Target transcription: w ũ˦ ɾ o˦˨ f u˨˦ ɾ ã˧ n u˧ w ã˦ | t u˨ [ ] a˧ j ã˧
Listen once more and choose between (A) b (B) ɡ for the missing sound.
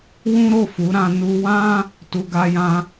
B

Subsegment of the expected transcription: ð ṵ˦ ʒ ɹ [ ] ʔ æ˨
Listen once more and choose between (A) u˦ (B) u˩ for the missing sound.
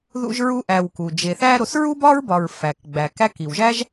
A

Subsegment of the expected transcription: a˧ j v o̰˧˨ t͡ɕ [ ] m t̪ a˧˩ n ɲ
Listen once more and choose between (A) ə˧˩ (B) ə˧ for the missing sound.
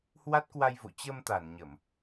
B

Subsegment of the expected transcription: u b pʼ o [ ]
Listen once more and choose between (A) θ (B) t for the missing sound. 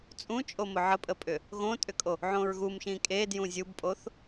A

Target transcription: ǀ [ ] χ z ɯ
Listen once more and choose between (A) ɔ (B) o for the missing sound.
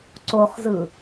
B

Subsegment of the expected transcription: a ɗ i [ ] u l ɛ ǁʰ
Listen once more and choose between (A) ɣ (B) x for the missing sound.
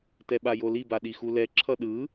B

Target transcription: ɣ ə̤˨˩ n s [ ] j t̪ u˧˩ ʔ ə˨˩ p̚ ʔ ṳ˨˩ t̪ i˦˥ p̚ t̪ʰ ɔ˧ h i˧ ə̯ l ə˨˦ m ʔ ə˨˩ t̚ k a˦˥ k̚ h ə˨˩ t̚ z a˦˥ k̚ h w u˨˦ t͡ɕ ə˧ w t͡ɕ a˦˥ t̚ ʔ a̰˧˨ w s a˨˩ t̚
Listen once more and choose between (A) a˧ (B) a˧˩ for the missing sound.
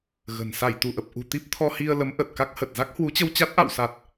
B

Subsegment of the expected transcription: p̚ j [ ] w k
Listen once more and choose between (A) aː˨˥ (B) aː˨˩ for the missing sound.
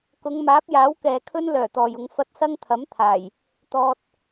A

